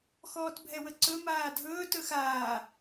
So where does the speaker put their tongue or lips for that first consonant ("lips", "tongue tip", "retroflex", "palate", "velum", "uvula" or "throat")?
velum